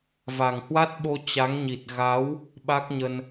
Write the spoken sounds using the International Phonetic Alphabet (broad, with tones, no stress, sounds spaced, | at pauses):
v a˨˩ ŋ h w a˦˥ t̚ ɓ o˧ t͡ɕ a˨˦ ŋ ɲ i˨˩ t̚ ɣ a˨˦ w | ɓ a˦˥ k̚ ɲ ə˧ n